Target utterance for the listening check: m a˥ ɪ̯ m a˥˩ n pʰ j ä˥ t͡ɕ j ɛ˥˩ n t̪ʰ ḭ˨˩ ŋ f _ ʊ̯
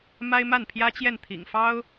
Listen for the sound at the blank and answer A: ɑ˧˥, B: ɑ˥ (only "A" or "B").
B